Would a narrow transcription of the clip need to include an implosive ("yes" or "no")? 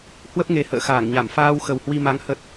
no